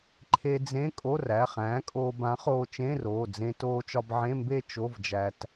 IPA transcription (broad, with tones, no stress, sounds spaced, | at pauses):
ǃʰ e˧ d͡z ẽ˧˥˧ kʼ o˧˥˧ r æ˩˧˩ χ æ̃ː˨˥ kʼ oː˧ b ã˨˥ χ oː˧ t͡ʃ ẽ˧˥˧ r oː˩˧˩ d͡z ẽ˧ t oː˧ t͡ʃ ɒ˧ b ʕ ẽ˧˥˧ m b e˥˧ t͡ʃ o˧˥˧ v d͡ʒ æ˧ t